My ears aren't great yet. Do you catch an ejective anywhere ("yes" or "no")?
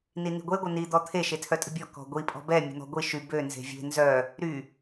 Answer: yes